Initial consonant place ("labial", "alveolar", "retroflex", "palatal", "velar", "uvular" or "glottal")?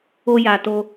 palatal